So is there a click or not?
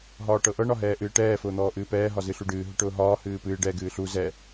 no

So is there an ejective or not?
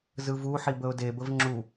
no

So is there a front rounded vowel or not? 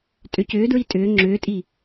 yes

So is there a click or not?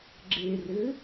yes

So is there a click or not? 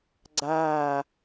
yes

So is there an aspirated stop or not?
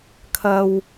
yes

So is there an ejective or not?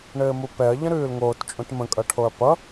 yes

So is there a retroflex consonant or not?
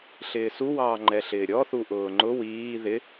no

